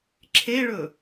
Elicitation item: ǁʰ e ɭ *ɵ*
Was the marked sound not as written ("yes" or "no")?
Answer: no